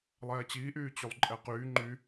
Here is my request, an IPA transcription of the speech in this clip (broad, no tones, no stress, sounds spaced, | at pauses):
lˠ ɛː t͡ɕ iː ʔ yː t͡ɕ y lˠ ǃʼ ɛ q yː ŋ͡ǃ y